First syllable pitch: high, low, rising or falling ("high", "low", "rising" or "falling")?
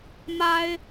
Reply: high